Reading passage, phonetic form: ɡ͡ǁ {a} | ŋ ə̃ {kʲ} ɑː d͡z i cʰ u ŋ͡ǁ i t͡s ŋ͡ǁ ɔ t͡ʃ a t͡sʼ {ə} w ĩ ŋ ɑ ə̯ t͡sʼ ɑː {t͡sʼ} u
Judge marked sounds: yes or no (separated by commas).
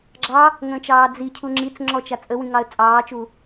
no, no, yes, no